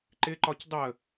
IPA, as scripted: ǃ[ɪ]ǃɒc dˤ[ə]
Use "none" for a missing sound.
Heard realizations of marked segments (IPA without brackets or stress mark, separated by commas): ɪ, ə